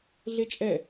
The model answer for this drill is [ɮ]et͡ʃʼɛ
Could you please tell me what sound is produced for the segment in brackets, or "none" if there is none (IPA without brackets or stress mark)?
ɮ